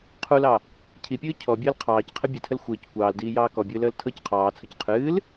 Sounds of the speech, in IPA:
qʰulɑ | cʰipʲɨː cʰɔbʲəːl qʰɑːcqʰɘ bʲɘtʰəl xʷɘːc kʷɑːldiːjɑː kɔbʲɨːləːl tʰɤc qʰɑːt͡sʰɤc qʰɨːl

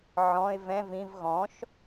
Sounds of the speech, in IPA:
ʕɔ̃ɪ̯ vɛ̃ vĩv ɣɔ̃ʃ

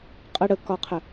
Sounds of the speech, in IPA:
qʼə ɽəkɒqʰə

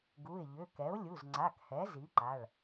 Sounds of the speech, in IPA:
ɡu˩˧˩ɪ̯ʎʏ˩˧˩ kɛ˩˥ʊ̯lʲu˩˧˩zŋ͡ǀa˩˧˩khɛ˩˥ zi˩˥ǃa˩˧˩ɭ

